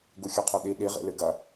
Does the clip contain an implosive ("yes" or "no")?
yes